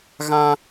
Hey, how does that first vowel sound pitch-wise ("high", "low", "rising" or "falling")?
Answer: high